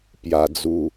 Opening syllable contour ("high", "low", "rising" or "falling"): low